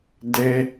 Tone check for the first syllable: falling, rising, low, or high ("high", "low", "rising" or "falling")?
high